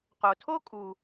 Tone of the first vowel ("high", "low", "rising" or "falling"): low